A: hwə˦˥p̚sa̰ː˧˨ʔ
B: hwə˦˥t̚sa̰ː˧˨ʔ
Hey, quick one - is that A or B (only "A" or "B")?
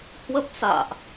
A